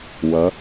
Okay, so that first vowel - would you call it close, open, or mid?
mid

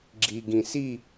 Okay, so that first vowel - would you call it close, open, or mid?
close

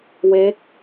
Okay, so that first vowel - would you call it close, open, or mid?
mid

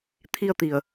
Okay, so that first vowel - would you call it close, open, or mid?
close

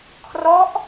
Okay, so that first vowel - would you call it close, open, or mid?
mid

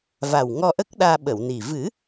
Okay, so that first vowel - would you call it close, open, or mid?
open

